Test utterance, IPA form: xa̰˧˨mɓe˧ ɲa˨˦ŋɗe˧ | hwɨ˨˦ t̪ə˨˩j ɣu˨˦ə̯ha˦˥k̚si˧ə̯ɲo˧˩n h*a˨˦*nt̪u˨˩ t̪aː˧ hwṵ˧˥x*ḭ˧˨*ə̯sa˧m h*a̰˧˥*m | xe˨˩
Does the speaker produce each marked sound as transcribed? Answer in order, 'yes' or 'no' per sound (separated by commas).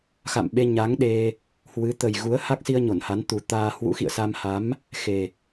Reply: yes, yes, no